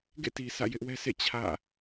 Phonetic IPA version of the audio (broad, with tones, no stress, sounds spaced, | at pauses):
ɡ ḛ˦˨ t i˨ sʰ ä̰˦˨ j ɪ˦ ʔ w ɛ˦ s ḛ˦˨ t͡ɕʰ ä̰˦˨